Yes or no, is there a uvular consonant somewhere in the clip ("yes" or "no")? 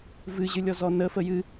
no